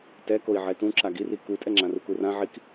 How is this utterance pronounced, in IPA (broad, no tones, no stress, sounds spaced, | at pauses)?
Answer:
t ɛ k o i̯ ʕ ɛ t ũ ǁ a ɡ i r i k u tʼ ɛ ŋ͡ǁ ã r u k u r ã ʕ i k